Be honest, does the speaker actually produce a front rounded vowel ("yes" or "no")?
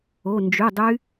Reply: yes